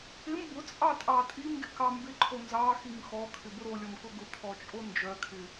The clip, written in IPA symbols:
ɪm bʊt͡sʼɑtʼɑ tʼimɡɪkɑ mbɪǃʰo nzɑxim xɔkʰɪbʊ ɾolʲɔmkʊ ɡʊkʰɔt͡ʃʼo nd͡ʒœkʰɪ

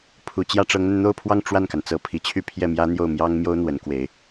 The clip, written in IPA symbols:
pʰu˨˩ t͡ɕjä˥˩ʈ͡ʂɤ˧˥ŋn̪ə˧n n̪o˥˧ʊ̯pʰwɑ˥˧ŋ ʈ͡ʂwa˥˩nka˩n t͡sɤ˧˥pʰi˨˩t͡ɕʰy˥˧ pʰjɛ˥˩mjä˥ n̪jo˥˩ʊ̯mjɑ˥ŋmjo˥ʊ̯ n̪wə˧˥nkwe˧˥ɪ̯

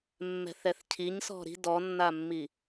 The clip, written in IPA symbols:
mːɛ̤θɛθcʰiɲsɔ̤ ɾi̤ dɔnːamːi

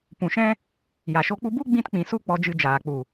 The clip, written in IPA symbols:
pũ˨ʃɛ̃˦ | ja˨ʃo˦k͡pu˦ bu˦ɡ͡bĩ˧tk͡pĩ˨su˧ k͡pɔ˧d͡ʒɨ˧d͡ʒaː˨ k͡pu˨

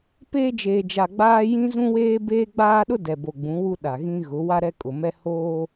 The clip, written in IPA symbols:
peː˦d͡ʒeː˨d͡ʒa˨ɡ͡baː˦ jĩ˦zũ˦weː˦ beː˦ɡ͡baː˦ɗʊ˦ dɛ˨bo˨ɡ͡bũ˨˦ wu˦ɗa˨ɣĩ˦ ɣʊ˨˦ wa˦ɾɛ˦kʼʊ˨ mɛ˦ hoː˦

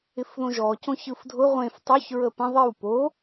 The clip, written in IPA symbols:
ɪfðõʒɔ cõçɯfdʱʊ ʁʷẽf tˤoç ɹəpə̃ ðˤɪw po

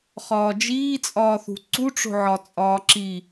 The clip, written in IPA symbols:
χɒːd͡ʒiːt͡sʼɒːθṳ ǀuʈ͡ʂo̤ʕɒ t͡sʼɒːǁi

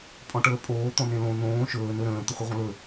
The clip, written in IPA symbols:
pʼɔ̃ʈəːpʼoː t̪ɔ̃nẽlõ nõː ʃɵː nɵɾə̃ː t̪əχʷiʁʷə̃lɵ

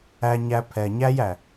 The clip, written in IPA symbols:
æ˧ɲæ˧pʰɛ˨ ɲæ˦jæ˨

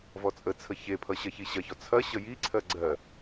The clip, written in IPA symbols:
vɔt͡sʼət͡sʰə çepʰʌ ɕɐçiɕɐçɔ t͡sʰɐ ɕəjiǀʰɜ ɡ͡ǀɜ

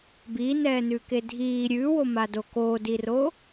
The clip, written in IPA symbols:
binɛːnʉke dʱiː ɾʲʉːwomado koːdiro

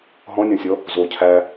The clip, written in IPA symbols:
ɦɔ̃nʲɔ̃sʲɔ | zo cʰæ

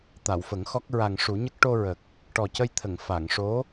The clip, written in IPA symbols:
t̪a˨˩˨wfə˨˩˦ŋxɔ˦˥k̚ ɹa˨˩ŋʂu˨˩˦ɲə˦˥k̚ ʈo˧ɹə˨˩k̚ | ʈɔ˨˩cə˧jt̪ʰə˨˩˨ŋ fa˨˩˨ŋʂo˧˥

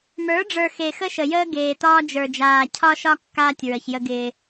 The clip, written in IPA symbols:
mə˞˨˦ɖ͡ʐə˞˨ xe˨xə˦ʃə˨jəː˦ ɡeː˨tɒː˦ d͡ʒə˞˨d͡ʒaː˨cʰɒ˦ʃɒ˦ kːaː˦tʲɹə˨ç jə˦ɡɪː˦

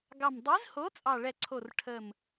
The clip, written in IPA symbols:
ɡɑ˨˩mdˤi˨˥zho˨˥ t͡sʼɑ˨˩ɭɛ˨˩ǀʰo˨˩r ʈʰə˨˩m

